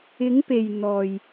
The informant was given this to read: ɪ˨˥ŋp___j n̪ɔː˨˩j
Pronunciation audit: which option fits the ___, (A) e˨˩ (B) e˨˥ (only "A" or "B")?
A